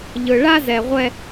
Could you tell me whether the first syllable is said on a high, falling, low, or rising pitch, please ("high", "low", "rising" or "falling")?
low